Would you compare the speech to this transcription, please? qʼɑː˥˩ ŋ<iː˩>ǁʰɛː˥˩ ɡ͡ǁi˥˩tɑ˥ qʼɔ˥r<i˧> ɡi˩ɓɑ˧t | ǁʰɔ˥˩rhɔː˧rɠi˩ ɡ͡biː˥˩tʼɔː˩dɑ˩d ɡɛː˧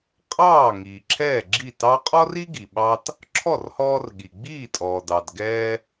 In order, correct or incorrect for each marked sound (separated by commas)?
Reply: correct, incorrect